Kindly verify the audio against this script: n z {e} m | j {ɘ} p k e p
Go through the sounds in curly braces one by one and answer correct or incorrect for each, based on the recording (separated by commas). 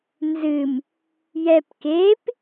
incorrect, incorrect